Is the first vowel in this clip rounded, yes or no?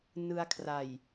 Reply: no